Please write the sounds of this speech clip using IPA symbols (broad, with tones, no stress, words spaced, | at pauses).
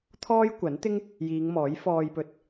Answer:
t̪ʰɔː˥jkʷɐ˨˥nt̪ɪ˥ŋ | jiː˨˧ŋmɔː˨˥j fɔː˧jpɵ˧t̚